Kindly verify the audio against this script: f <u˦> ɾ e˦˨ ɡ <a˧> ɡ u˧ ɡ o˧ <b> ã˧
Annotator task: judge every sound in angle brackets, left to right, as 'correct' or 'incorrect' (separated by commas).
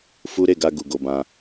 correct, correct, correct